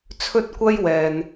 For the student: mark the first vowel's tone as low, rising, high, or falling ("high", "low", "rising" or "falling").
high